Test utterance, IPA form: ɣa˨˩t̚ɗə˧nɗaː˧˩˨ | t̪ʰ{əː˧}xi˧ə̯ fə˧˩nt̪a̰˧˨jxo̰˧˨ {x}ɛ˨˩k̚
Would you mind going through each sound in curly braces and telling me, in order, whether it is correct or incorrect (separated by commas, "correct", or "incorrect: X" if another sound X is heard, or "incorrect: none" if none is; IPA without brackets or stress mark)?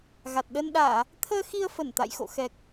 correct, correct